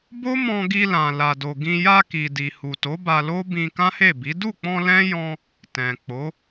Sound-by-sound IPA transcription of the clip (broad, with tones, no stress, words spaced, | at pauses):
bo˦mɔ̃˧ɡi˧lã˨ la˨do˨ɡĩ˧ ja˧ ki˨di˨hu˨to˨˦ ba˧lo˦bĩ˧ kã˦he˦˨bi˨˦ du˦˨k͡pɔ̃˧ lɛ̃˦ jɔ̃˧ | tɛ̃˨k͡po˨˦